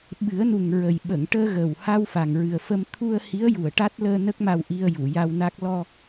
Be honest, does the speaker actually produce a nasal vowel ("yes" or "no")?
no